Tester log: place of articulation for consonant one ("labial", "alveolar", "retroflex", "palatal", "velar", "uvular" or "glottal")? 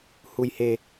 glottal